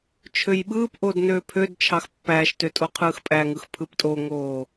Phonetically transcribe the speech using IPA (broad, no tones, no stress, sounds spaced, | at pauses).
t͡ʃʰ ø j ɓ ɯː p ʔ o d n øː pʰ ø d t͡ʃʰ ɑ x pː æː ʃ t ø tʼ o qʰ ɯː x pʼ æ ŋ ɯ x pʰ ɯ p tʼ o ŋ oː